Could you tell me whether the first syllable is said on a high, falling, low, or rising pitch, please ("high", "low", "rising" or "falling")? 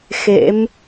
rising